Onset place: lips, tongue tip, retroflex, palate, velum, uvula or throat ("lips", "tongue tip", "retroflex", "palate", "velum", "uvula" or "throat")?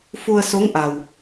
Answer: lips